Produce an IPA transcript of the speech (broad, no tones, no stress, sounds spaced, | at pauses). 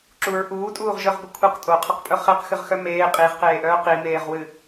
ǁ u ɹ ʔ uː tʼ uː ʁ ʒ œ ʁ ɡʷ ɨ kʷʰ ɨ q tʼ o qʰ o q pʼ œ χ e q x ɨ ʁ x œ m eː qʼ i ʁ q eː ʔ œː q i m eː ʁ w ɨ